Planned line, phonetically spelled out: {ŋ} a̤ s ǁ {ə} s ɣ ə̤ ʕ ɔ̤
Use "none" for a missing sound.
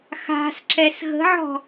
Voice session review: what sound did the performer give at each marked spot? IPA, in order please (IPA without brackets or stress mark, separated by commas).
x, ɛ